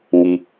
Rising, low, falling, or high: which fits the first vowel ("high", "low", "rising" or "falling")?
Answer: low